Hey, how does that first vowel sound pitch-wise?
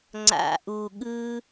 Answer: low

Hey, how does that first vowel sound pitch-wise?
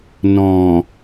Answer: low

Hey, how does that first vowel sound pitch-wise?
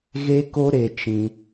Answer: high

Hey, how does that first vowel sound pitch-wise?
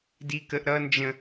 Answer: high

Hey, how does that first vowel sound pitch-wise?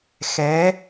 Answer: rising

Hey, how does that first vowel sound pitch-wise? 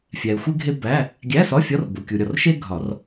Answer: low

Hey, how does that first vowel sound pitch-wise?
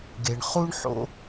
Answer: low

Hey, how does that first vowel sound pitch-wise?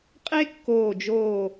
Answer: high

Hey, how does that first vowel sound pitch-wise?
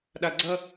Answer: low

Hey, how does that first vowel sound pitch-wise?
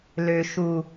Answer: low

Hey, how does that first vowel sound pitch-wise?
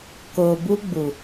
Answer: low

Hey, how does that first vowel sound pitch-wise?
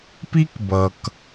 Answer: high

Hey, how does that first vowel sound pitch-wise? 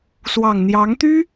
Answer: low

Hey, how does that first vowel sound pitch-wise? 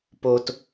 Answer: high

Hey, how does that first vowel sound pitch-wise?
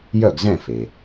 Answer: falling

